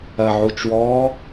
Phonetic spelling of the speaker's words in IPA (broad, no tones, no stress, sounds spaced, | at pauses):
ɐ ʕ u t͡ʃ w ɔː